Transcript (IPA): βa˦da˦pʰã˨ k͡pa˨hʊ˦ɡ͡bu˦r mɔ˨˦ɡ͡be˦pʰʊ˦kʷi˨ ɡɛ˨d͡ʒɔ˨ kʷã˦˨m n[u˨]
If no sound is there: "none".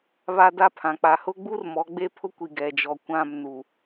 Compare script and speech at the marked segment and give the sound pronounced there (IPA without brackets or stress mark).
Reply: u˨